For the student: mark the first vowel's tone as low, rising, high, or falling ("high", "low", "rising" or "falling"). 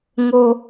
high